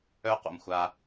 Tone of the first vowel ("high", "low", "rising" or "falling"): high